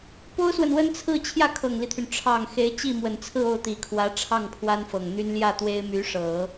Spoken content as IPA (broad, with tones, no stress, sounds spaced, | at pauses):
p o˥ ʊ̯ s w ə˨ n w ə˥ n t͡sʰ ɹ̩˥˧ t͡ɕʰ j ä˥˩ kʰ ɤ˨˩ ŋ l i˦ t̪ʰ y˩ n ʈ͡ʂʰ ɑ˨˩ ŋ x e˧˥ ɪ̯ t͡ɕ i˥˩ m w ə˨˩ n t͡sʰ ɹ̩˥˧ o˥˩ ʊ̯ t̪ i˨˩ kʰ w ä˧˥ ʈ͡ʂʰ ɑ˥˩ ŋ pʰ w a˥ n f ɤ˨˩ ŋ n̪ y˥ n l j ä˥˩ t̪ w e˥ ɪ̯ m y˧˥ ʂ ɤ˨˩˦